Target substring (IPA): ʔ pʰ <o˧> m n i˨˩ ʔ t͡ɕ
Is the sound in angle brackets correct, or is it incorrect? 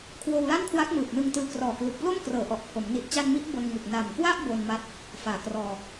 incorrect